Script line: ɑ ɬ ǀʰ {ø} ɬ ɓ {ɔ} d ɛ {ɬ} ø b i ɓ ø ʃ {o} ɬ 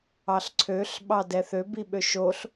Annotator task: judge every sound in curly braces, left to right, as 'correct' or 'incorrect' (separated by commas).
correct, incorrect, incorrect, correct